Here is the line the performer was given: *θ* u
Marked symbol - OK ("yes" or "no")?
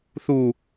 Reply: yes